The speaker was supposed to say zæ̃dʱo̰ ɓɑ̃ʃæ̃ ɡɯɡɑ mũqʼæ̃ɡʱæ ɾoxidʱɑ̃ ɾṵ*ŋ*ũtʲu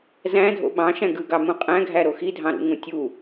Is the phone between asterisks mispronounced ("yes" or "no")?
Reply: no